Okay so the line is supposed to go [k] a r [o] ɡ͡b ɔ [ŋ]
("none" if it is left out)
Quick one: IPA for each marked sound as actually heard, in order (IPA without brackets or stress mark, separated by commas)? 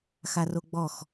x, o, x